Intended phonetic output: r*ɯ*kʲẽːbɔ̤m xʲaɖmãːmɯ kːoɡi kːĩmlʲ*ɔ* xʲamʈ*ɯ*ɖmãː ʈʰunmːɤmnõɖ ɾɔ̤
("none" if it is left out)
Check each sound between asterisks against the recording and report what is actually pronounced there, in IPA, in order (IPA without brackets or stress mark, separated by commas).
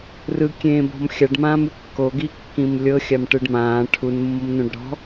ɯ, ɤ, ɯ